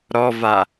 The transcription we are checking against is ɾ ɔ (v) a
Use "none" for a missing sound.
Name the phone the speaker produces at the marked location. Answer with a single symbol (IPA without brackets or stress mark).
v